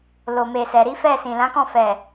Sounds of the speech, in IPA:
l o˨ m e˨ s ɛ˨ ɾ i˨˦ f ɛ˦˨ s ĩ˨ l ã˨˦ k ɔ̃˦˨ f ɛ˨

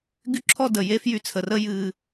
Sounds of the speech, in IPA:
ɡ y˥ ǁʰ ɔ˥ d ə˨ j e˦ f j y˦ t͡sʰ ə˩ r ə˦ j ɨ˨

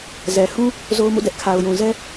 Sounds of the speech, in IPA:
z ɛ˨ h ũ˦ | z o˦ ʊ̯ m ṵ˦˨ d ɛ˦ ʔ kʰ a˨ ʊ̯ j ũ˨ z ɛ˦

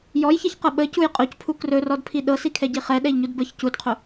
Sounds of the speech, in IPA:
j ɔ j ç ɛ ç q ɤ ɓ ə c u j qʼ o c pʰ u k r ɵ r ɔ d pʰ i ɗ ɤ s i kʰ ɛ ɟ i χ ɛ ɗ ɛ ʎ ɲ u d b ə ç c u d qʰ o

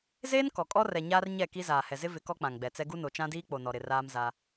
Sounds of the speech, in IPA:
z eː˦ n k ɔ˨ kʼ ɔ˦ r ɛ˨ ɲ aː˦ r ɲ ɛ˦˨ k i˦ z aː˨ h ɛ˨ z ɪ˦ v ɪ˨˦ k ɔ˦ k͡p ã˨ ŋ ɡ͡b ɛ˨ t͡s ɛ˦ ɡ u˦ n o˨ t͡ʃ ã˦ d iː˦ k͡p o˨ n ɔ˨ ɾ ɪ˨ r aː˦ m z a˦

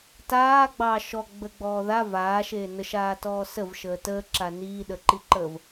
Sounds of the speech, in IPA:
t aː ɡ͡b ɑ ʃ ɔ ɡ͡b ə ɡ͡b ɔː ð a v aː ʃ eː n ə ʃ aː t ɔː s ə v ʃ əː t əː ǁ a n iː ɗ ə ǃ i ǃ əː v

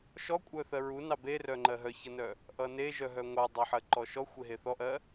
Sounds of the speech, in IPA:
ʃ ɔ kʷʼ œ θ ɜ ɹ u n ɑ b e r œ ŋ͡ǃ ɜ ɦ œ ç ʌ n œ | ʔ ʌ n e ʒ œ ɦ œ ŋʷ ɑ dˤ œ ħ ɜ ǃ ɔ ʃ ɔ xʷ e ɦ e θ ɔ ʔ ɜ

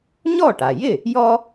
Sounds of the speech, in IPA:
ɲ ɔ˥˩ ʈ a˩ j ɪ˥˩ | j ɔ˥

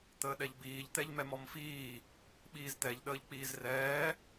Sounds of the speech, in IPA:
t̪ əː ɗ ɛ ʎ b iː ʎ t̪ ɛ ʎ m ɛ m ɔ m f iː | ɓ iː z t̪ ɛ ʎ ɗ əː ʎ k͡p iː z r ɛː

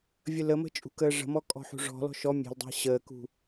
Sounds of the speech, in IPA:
vʲ ə l ə m ə̤ t͡ʃʼ ṳ k əː ʐ ə̤ m ɔ kʼ ɔ̤ ħ ṳ ʐ ɔ̤ l ɔ̤ ʃ ɔ mʲ e̤ l dˤ e̤ ɕ əː k ṳ

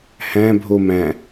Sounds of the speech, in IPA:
h æ̃ bʱ o m æ̃

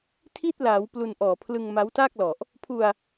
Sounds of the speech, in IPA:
tʰ i˥˩ t̚ l aː˩˦ w p l u˧ n ʔ ɔː˨˩ pʰ l ɯ˧ ŋ m a˦˥ w t a˥˩ k̚ l ɔ˨˩ ʔ | pʰ u˧ a̯

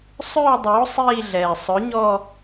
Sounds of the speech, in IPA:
sˤ œː˥˧ dˤ oː˨˥ sˤ iː˥˧ ɮ ɛː˨˩ sˤ œ˨˥ ɲ ɔ˥˧

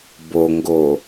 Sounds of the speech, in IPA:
b o ŋ ɡ o

